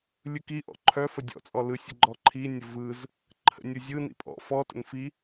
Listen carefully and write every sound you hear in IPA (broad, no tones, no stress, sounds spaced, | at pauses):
lʲ ɯ k i ʔ ɔ̰ ǃʰ œ f ə dʲ ɔ̰ t͡sʼ ɔ l ɯ sʲ ə ɡ͡ǃ ɔ ǃʰ i nʲ ə v ɯ z | ǃʰ ə̰ nʲ ɯ zʲ ɯ n ḭ pʼ ɔ̰ f ɔ t ə̰ n f i